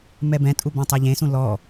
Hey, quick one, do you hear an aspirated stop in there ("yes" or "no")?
no